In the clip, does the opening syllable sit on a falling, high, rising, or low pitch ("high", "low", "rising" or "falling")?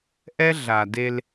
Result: high